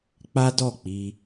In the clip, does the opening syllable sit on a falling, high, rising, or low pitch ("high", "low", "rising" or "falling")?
high